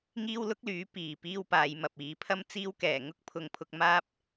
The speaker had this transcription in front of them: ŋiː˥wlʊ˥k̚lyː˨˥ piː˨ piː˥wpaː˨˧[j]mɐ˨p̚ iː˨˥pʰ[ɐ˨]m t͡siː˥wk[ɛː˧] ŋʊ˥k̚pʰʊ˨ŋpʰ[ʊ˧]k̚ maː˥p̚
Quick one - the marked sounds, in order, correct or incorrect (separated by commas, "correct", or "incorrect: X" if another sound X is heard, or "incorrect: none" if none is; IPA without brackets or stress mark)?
correct, incorrect: ɐ˥, incorrect: ɛː˨˩, correct